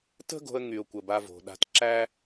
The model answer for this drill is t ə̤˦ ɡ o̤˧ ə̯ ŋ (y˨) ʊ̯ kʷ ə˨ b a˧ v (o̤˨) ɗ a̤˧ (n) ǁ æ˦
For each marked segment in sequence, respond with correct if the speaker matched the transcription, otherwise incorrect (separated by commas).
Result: correct, correct, incorrect